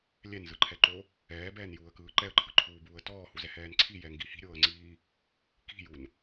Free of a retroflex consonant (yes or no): yes